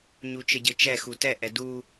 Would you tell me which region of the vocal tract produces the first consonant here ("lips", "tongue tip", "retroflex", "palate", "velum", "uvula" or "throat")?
palate